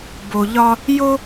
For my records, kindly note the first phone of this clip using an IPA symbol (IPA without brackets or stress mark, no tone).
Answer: b